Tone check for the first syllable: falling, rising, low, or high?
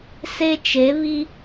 high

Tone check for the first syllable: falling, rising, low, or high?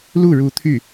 falling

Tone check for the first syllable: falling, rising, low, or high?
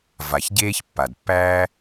low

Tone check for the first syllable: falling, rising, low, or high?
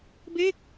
falling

